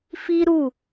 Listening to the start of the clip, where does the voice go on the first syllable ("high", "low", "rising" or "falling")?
high